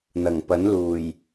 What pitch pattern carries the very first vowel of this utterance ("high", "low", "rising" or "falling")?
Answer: low